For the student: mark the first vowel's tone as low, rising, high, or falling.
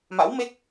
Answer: rising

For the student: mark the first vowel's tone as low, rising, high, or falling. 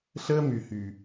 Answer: high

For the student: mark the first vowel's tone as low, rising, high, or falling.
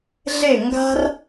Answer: falling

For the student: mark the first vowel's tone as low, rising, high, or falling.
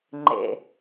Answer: low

